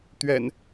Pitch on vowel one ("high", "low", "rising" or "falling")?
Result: low